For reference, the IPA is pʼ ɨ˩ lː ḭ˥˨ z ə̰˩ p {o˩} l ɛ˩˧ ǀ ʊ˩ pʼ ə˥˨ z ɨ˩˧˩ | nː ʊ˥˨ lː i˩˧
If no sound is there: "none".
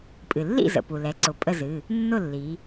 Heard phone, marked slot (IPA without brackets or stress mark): u˩